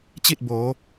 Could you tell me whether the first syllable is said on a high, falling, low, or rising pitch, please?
falling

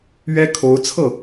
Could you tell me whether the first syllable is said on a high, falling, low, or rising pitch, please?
high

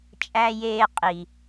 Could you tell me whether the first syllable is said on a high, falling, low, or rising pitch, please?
high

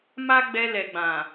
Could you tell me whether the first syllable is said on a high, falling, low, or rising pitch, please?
high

